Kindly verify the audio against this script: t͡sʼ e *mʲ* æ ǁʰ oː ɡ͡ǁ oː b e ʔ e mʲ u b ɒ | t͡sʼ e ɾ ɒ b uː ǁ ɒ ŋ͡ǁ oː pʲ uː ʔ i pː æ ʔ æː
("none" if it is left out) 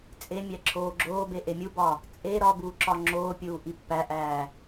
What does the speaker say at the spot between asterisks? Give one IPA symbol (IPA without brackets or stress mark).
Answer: mʲ